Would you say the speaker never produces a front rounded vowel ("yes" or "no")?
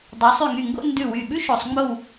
no